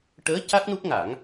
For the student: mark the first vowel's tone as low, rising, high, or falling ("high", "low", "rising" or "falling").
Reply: rising